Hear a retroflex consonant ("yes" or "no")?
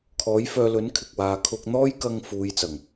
no